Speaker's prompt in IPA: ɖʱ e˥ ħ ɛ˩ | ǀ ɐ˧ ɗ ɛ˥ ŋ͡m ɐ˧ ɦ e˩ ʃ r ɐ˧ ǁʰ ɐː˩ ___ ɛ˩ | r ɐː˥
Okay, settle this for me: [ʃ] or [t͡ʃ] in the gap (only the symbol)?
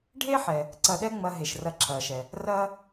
ʃ